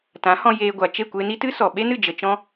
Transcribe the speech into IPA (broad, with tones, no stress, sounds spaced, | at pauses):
t ã˨˦ h ɔ̃˧ j eː˧ ɡʷ a˨ t͡ʃ e˦˨ kʷ e˧ n i˦ t ɨ˦ s ɔ˨ ɓ e˦ n ɨ˦˨ d͡ʒ ə˧ t͡ʃ ɔ̃˦